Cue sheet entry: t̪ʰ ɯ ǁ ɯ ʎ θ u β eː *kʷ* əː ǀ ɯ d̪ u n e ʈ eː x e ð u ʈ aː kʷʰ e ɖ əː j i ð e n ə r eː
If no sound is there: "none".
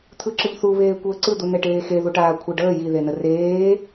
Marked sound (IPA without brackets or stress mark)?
kʷ